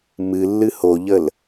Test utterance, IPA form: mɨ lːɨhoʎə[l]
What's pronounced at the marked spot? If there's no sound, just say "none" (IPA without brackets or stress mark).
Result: l